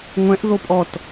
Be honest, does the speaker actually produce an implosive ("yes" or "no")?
no